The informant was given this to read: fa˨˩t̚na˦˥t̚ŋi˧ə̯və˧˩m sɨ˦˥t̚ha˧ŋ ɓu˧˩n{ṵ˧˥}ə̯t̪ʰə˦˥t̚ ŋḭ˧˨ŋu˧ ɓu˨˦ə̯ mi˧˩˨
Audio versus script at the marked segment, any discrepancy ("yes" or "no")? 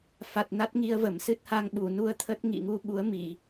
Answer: yes